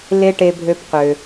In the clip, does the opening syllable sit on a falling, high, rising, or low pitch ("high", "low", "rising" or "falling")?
high